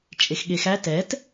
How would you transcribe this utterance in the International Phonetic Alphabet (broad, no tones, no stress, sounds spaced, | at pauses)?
t͡ʃʼ e x ɠ e x æ t ɛ t